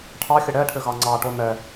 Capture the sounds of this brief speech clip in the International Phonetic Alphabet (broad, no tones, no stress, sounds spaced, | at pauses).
ʈʰ ɑ xʲ ɘ ɽ ɛ ʈʰ ʏ ɣ ɑ ŋ͡ǀ ɑ ʈ o n ɛ